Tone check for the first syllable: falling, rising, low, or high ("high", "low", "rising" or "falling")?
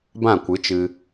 falling